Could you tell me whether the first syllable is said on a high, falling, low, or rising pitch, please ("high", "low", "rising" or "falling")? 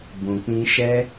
low